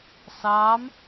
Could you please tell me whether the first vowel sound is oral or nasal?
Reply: oral